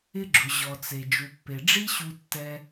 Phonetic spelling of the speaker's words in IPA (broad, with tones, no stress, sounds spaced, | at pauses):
ɪ˦ ɡ͡ǁ ʊ˨ ʑ ɔ˨ t͡s e˨ d͡ʒ u˨ pː e˨ ɖ͡ʐ i˦ ɕ u˧ tː ɛ˧